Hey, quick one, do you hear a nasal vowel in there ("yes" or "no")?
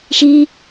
no